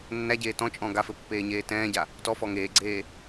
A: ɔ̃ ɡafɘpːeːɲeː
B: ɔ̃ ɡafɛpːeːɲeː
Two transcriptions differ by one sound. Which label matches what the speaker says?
A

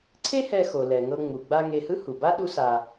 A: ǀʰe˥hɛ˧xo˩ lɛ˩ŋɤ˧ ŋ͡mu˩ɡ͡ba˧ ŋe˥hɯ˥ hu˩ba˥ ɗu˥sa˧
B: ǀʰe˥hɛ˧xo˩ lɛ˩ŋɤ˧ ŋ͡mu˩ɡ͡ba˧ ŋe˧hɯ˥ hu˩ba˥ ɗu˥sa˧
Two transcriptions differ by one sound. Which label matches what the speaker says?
B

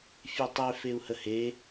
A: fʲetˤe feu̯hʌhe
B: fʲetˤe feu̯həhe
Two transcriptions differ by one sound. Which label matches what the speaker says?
B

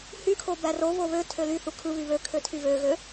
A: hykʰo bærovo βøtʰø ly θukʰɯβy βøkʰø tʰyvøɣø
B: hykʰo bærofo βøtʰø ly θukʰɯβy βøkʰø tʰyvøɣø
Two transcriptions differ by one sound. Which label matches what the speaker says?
A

